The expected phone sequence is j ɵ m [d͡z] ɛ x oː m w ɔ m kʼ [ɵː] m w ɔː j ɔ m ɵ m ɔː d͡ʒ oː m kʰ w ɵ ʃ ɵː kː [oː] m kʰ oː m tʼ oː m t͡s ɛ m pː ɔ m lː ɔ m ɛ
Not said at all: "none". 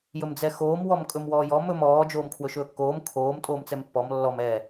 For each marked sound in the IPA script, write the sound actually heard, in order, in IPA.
d͡z, ɵ, oː

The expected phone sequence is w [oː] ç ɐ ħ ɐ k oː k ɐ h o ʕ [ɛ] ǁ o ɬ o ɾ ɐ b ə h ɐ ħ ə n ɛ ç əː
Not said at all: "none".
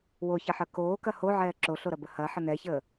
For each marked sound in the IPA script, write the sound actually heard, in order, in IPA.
o, ɛː

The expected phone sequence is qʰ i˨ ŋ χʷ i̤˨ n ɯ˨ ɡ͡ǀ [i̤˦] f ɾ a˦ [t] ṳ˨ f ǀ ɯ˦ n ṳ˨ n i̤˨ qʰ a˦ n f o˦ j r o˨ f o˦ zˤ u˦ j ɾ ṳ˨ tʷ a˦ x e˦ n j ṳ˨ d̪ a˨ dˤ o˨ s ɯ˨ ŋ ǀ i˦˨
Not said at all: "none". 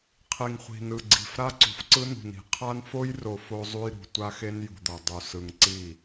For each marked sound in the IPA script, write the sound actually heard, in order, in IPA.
i̤˨, ǀ

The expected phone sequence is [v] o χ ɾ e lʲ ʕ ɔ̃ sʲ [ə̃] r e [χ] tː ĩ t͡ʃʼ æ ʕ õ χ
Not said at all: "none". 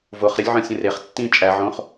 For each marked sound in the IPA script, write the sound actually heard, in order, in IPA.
v, ə̃, χ

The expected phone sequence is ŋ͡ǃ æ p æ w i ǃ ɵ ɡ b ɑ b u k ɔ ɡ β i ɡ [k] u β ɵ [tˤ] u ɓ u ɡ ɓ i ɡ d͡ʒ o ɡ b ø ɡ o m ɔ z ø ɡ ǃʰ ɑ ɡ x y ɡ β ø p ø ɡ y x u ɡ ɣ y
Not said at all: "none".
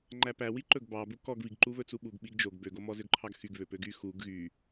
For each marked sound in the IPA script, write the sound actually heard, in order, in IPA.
ǃ, t͡s

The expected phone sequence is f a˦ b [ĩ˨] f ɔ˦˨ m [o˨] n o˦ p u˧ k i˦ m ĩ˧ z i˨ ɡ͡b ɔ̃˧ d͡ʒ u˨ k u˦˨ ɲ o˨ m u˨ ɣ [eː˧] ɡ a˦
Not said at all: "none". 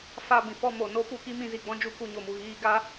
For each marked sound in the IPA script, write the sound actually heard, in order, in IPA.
ĩ˨, o˨, iː˧

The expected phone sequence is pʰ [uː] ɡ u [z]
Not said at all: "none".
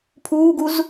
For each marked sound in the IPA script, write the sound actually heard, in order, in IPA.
uː, z

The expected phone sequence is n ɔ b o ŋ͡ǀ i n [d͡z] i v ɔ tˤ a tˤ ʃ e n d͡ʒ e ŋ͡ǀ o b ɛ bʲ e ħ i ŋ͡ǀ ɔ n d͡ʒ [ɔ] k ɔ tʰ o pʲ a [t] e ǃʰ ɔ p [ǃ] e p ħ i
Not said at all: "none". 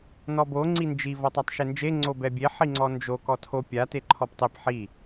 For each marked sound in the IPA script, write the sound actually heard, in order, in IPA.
d͡ʒ, o, t, tˤ

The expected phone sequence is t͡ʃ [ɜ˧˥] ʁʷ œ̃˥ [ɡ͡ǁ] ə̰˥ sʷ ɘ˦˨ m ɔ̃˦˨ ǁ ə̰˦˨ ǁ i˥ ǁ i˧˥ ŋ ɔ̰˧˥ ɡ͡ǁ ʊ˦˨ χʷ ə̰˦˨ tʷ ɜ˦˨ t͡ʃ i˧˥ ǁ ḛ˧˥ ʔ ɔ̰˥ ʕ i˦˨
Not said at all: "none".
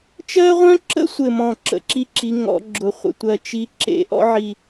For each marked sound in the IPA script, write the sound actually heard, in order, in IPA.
ɜ˥, ǁ

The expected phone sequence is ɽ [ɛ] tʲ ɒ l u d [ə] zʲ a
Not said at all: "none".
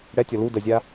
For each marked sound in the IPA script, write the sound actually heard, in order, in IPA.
ɛ, ə

